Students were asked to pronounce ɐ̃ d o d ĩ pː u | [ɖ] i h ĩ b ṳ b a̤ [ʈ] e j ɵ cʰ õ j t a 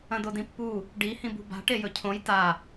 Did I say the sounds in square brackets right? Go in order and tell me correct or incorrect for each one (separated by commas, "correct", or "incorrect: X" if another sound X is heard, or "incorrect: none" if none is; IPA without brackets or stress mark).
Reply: correct, correct